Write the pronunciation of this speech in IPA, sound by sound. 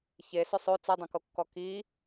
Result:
ç e s ʏ sˤ o t͡s o dˤ õ k o kː ɔ k i

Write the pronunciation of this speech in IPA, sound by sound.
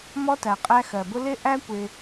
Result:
m ɔ˦ t æ˩ qʼ æ˦ x ɜ˩ b ʊ˥ l ɪ˦ ʔ æ˦ kʷ ɪ˨

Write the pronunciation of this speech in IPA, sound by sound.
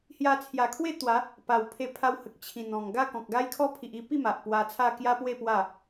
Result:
h j a˧ t͡sʰ j a˨˩ kʰ w e˥˧ t̪ w a˨˦ | p a˨˩ w pʰ e˧ pʰ a˧ w h ə˨ k̚ t͡ɕʰ ĩ˨˩ n̪ ɔ̃˨˩ ŋ ɡ a˥˧ k ɔ̃˨ k̚ ɡ a˦ j kʰ ɔ˦ pʰ i˨ ʔ i˧ p i˥˧ m a˨ ʔ p w a˧ t͡sʰ a˥˧ k j a˦ p w e˥˧ p w a˥˧

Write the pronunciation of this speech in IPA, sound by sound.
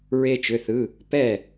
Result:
ɹ e˥ t͡ʃ ʏ˧˥˧ θ ɯ˧˥˧ | p ɛ˦˨

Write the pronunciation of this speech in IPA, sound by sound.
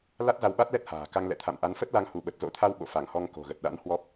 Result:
l a˦˥ t̚ z a˧ w ɓ a˦˥ t̚ l ɛ˦˥ t̚ h a̤ː˨˩ k a˧ ŋ l ɛ̰˧˨ t̪ʰ a̰˧˨ m ʔ a˨˦ n f ə˦˥ t̚ l a˧ ŋ h u˧˩ ɓ ə˨˩ t̚ z o̰˧˥ t̪ʰ a˧ w ɓ o̰˧˨ f a˧˩ ŋ h ɔ˧ ŋ k o̤˨˩ ɣ ə˨˩ t̚ ɗ a̰˧˥ n h w ɔ˦˥ p̚

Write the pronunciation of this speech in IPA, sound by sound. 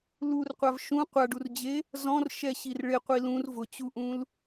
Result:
l u r qʷ a v ʃ ũ qʷ a ɖ u r d͡ʑ e | z ɔ̃ r ʃ ɛ ɕ i r ɭ ɪ qʷ i l ũ r v ʊ t͡ɕ u ʔ ũ l

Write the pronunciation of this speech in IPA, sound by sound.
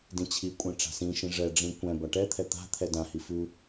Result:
d ĩ t͡ɕʰ i kʷʼ ɛ̃ ʈ͡ʂ a̤ s ĩ ʃ ĩ ʐ ɛ ɖ͡ʐ ĩ kʷ ɛ̃ b a ʈ ɛ t̪ʰ ɛ t̪ a̤ t̪ʰ ɛ d ã h i f ʉ

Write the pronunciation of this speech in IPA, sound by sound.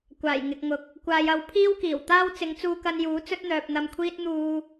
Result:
kʷ aː˨˩ j ŋ ɪ˨ k̚ ŋ ʊ˨˥ k̚ | kʷ aː˨ j ɐ˨˧ w pʰ iː˥ w k iː˨˩ w t̪ aː˥ w t͡s ɪ˨˧ ŋ t͡s uː˧ k ɐ˧ n j uː˨˥ t͡s ɵ˥ t̚ n̪ œː˨ p̚ n̪ ɐ˧ m kʷʰ iː˥ t̚ n̪ uː˧

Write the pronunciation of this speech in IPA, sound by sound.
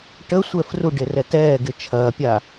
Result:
ʈ ə sʷ ɛ f r u ɖ e r ɛ t ɛː ɡ ɪ t͡ʃʰ ɐː pʲ a

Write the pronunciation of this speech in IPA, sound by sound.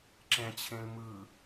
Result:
ǁ ɛ̃ t͡ɕʰ ẽ l m ɯ

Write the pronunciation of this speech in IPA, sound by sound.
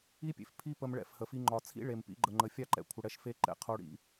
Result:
i˦ pʲ ḛ˨ f pʰ i˦ p ə˧ m ɭ ɛ̰˦˨ f h ə˨ f i˧ ŋ͡ǃ ɒ˨ t͡sʰ ḭ˦ ɭ e˨ m p ḭ˧ ɡ͡ǃ ə˨ ŋ͡ǃ ə˨ fʲ a˦˨ ǃ ɛ̰˨ kʷʰ ə˨ ɽ ɛ˧ ʃ f e˧ ǃ ɛ̰˨˦ qʰ o˧ ɽ ḭ˧

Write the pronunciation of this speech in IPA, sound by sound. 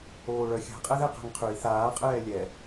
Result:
oː ɭ œ xʲ a̤ qʼ ɛ ð ɛ q a̤ ŋ qʰ ʉ i̯ θ aː qʼ ɛː lʲ ɛ

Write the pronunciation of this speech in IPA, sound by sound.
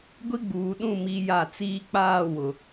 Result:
ɡʷ i˦ ɡ͡b uː˨ ɗ ũ˦˨ m i˦ j a˦˨ t͡s iː˦ k͡p aː˦˨ w ʊ˨

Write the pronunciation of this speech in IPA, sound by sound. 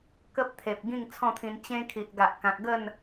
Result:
k ə˦ p̚ t̪ʰ e˨ p̚ ɡ ĩ˥˧ ŋ t͡sʰ ɔ̃˥˧ t̪ʰ ĩ˧ n t͡ɕ ẽ˧ kʰ i˨ ʔ ɡ a˨ ʔ k ã˨ k̚ ɡ ə˥˧ n

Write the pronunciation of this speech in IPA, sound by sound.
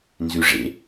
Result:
n z ʉ ʐ ḛ

